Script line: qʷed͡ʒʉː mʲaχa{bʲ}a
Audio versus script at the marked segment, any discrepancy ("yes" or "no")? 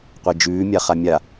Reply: yes